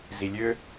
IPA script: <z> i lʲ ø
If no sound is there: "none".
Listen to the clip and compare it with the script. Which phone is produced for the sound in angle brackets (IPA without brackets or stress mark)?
z